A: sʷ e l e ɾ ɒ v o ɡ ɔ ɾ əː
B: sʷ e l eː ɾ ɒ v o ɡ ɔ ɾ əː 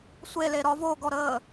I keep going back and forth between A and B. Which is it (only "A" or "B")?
A